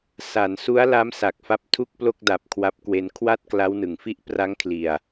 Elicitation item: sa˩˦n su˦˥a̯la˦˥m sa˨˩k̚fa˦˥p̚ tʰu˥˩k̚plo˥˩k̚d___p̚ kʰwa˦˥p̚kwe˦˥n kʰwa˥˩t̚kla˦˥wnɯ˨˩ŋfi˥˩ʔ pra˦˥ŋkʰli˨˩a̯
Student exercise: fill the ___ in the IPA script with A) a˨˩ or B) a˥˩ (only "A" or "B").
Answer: A